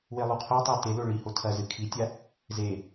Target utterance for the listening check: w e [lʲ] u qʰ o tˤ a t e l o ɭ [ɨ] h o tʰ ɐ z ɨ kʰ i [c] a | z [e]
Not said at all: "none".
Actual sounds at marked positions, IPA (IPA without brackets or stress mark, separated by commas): lˠ, i, tʲ, e